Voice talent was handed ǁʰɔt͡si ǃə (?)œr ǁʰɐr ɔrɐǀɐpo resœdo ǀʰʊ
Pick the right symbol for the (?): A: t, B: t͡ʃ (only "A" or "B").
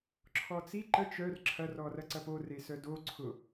B